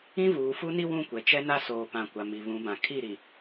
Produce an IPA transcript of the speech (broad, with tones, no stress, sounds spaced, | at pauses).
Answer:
ĩ˦ v uː˨ f u˦ n i˦ w ũ˦˨ kʷ ɛ˨ t͡ʃ ɛ˦ n a˦ s oː˨ p ã˨ kʷ a˨ m i˨ β ũ˨˦ b ã˨ kʰ i˦˨ ɾ i˨